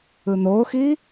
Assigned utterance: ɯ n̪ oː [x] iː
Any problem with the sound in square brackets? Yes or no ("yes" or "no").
no